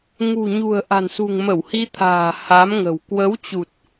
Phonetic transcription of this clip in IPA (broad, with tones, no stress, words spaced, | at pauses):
ŋṳ˨˩ɲṳ˨˩ə̯ ʔa̤˨˩nsṳ˨˩ŋ mə˧˩whi˧t̪ʰa̤ː˨˩ ha˨˦mŋə̤˨˩w kwə˨˦wt͡ɕu˨˩t̚